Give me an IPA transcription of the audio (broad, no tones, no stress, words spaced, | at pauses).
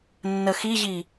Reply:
nːəxiʑi